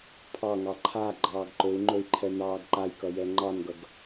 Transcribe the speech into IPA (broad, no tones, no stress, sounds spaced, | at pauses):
pʰ ɑ ŋ ɑ ǃʰ a ɡ͡ǃ ɑː ɡ ǃ ɵ u̯ ŋ͡ǃ ɵ i̯ ǃʰ ɛ n ɑː ɡ ǃ a j k ʌ j ɛ ŋ͡ǃ ɑ n ɡ ʌ ɡ